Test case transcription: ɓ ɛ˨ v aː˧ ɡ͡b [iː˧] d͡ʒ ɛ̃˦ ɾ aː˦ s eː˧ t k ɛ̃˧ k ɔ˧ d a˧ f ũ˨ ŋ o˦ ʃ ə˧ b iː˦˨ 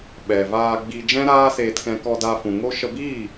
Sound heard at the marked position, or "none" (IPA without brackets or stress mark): i˧